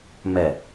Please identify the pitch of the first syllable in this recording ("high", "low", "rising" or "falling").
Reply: low